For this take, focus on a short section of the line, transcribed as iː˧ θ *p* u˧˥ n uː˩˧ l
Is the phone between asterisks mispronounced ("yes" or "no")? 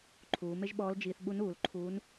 yes